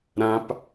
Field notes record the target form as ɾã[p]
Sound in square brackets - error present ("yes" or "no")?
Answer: no